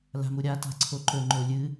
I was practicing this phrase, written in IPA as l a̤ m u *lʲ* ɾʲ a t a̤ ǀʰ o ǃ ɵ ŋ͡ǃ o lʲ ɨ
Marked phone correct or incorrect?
incorrect